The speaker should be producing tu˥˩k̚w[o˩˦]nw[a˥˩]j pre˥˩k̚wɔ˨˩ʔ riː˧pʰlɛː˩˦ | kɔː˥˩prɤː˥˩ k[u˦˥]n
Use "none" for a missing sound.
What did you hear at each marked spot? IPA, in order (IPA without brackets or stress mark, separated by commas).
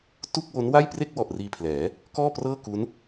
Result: o˦˥, a˥˩, u˦˥